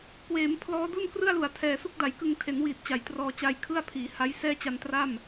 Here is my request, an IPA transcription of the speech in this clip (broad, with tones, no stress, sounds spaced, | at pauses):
k w eː˩˦ m pʰ l ɔː˦˥ d u˥˩ n k r ɯ˥˩ a̯ l u˨˩ a̯ tʰ ɛː˨˩ s u˥˩ k̚ d a˩˦ j k ɯ˧ ŋ tʰ e˩˦ n w iː˨˩ t̚ t͡ɕ a˩˦ j t r ɔː˧ t͡ɕ a˧ j kʰ ɯ˥˩ a̯ pʰ iː˩˦ h a˦˥ j s ɛː˥˩ t͡ɕ a˧ n t r a˥˩ m